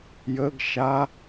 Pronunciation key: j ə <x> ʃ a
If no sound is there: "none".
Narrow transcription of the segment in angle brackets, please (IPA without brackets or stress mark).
ɡ